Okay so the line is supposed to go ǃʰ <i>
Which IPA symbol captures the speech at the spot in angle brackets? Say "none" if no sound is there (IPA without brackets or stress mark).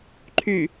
y